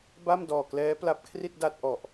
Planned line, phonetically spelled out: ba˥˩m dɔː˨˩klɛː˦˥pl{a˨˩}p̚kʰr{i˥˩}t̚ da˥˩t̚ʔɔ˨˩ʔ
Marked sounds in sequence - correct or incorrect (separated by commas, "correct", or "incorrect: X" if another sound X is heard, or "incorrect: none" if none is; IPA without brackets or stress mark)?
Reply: incorrect: a˦˥, correct